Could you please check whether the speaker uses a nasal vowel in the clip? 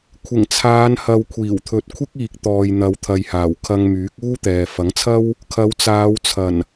no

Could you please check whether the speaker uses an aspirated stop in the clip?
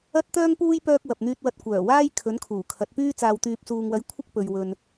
yes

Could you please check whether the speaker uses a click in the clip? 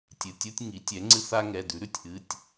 yes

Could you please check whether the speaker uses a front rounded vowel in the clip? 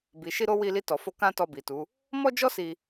no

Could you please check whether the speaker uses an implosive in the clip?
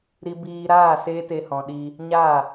yes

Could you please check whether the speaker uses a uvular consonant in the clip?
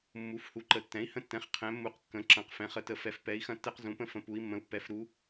yes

